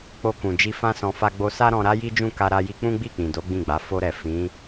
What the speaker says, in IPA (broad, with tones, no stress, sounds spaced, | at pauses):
k͡p o˧ k ũ˨ d͡ʒ i˧ f ã˦ s ɔ̃˧ f a˧ ɡ͡b o˧ s a˦ ɾ ɔ̃˧ ɾ a˦ j i˦ d͡ʒ ũ˦˨ k a˧ ɾ a˧ j i˧ k͡p ũ˦ ɡ͡b i˦˨ k͡p ĩ˨ d o˨˦ ɡ͡b ĩ˦˨ ɡ͡b a˨˦ f o˧ ɾ ɛ˨ f ĩ˨˦